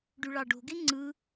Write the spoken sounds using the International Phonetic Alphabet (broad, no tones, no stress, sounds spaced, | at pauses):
ɖ y ɭ ɑ ɖ o̤ ɡ e ŋ͡ǀ ɯ